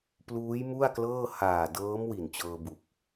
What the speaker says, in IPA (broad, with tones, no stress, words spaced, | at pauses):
pluː˦˥jmu˥˩a̯klɤː˥˩ haː˨˩dɤː˦˥m wi˨˩nt͡ɕɤː˧bu˨˩k̚